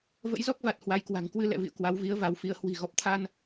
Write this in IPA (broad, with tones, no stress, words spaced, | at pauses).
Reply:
və̰˧˥jzɔ˦˥k̚va˨˩t̚ hwa˨˦jkwa̤˨˩ŋ kwɨ˧lɛ̰˧˨vḭ˧˨ə̯ kwa˨˦wvi˨˦ə̯va˨˦wfi˧ə̯ hwi̤˨˩ ɣɔ˨˩p̚t̪ʰa˧n